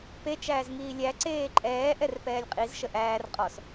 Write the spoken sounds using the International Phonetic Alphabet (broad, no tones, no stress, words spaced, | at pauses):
pe t͡ʃæːzŋiːlʲæ ǀeːǃʼɛː ʔɛrpɛːlʲqʼiz ʃəʔæːr qʼɔs